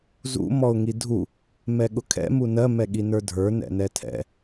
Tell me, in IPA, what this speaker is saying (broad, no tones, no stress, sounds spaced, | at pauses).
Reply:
z ṵ m ɔ ʊ̯ ŋ i dʱ u | m ɛ ɠ ʊ kʰ ɛ̰ m u n ɜ m ɛ ɠ i n ə˞ dʱ ə˞ n ɛ̰ n ɛ tʰ ɛ̰